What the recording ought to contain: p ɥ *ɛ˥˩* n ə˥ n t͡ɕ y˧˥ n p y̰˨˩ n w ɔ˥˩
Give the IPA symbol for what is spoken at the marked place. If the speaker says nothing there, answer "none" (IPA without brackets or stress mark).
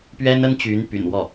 ɛ˥